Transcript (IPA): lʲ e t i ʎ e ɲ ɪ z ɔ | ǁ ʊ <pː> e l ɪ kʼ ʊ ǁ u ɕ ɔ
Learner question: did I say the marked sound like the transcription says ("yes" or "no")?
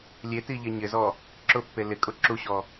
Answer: yes